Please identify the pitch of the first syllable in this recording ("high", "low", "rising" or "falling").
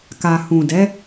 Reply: low